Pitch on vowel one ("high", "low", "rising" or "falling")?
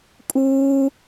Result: high